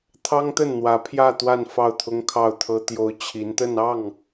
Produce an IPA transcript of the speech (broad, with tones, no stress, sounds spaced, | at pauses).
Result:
t̪ʰ ɑ˥ ŋ t̪ ə˥˩ n n̪ w ä˧˥ pʰ j ä˥˧ t̪ w a˥˧ n f ɑ˥˩ ʊ̯ t̪ʰ ʊ˥ ŋ kʰ ɑ˥˩ ʊ̯ t̪ʰ ɤ˥ t̪ j o˧˥ ʊ̯ t͡ɕʰ i˧˥ n t̪ ə˥˧ n ɑ˥˩ ŋ